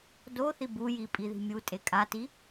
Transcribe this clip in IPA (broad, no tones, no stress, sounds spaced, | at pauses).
d o θ i b u j i pʼ i ð i̤ mʲ u tʼ e kʼ a t i